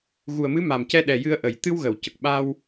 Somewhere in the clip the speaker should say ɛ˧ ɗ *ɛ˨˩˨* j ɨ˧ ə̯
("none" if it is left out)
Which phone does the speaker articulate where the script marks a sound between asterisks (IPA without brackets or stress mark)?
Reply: ɛ˨˩